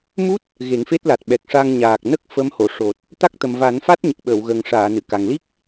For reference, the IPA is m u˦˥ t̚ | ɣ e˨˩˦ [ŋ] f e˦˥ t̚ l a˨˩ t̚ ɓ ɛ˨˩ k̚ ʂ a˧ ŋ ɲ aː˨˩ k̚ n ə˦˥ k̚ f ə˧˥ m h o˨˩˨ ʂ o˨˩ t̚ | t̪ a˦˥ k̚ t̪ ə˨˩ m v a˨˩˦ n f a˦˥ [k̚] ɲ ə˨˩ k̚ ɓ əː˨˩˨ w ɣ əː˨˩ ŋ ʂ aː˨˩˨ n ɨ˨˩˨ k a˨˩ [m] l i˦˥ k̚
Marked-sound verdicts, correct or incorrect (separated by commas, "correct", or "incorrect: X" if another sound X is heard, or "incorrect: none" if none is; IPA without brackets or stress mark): correct, incorrect: t̚, incorrect: ŋ